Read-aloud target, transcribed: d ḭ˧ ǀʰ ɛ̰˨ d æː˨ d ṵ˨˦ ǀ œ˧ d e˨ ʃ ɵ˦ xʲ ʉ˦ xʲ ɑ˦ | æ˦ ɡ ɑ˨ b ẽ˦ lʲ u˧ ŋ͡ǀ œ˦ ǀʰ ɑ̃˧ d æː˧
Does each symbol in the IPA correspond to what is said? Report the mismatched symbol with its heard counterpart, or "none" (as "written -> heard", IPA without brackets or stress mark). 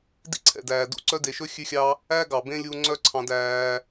none